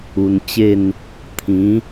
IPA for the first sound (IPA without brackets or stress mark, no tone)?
u